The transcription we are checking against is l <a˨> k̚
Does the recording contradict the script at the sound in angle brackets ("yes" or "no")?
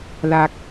no